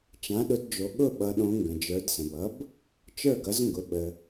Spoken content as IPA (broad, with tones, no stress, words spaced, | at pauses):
t͡ʃã˩˥ɗʊ˩˥dd͡ʒo˩˧ ɠʊ˥˩ɓʌ˩˧ɗõ˩˧ ŋɡə̃˩d͡ʒə˞˩˧dsə̃˩bʌ˩˥b | t͡ʃə˞˥˩ɡʌ˩˥zŋɡʊ˩˧ ɓə˩